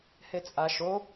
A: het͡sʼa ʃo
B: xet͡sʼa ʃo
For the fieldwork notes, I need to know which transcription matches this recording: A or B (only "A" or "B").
A